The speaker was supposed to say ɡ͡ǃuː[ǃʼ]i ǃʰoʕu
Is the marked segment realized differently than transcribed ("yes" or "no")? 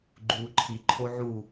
yes